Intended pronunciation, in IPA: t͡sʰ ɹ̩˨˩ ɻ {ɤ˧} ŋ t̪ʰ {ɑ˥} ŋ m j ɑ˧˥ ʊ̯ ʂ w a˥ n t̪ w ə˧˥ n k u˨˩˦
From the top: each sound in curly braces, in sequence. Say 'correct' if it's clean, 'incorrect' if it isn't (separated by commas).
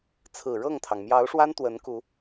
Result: incorrect, incorrect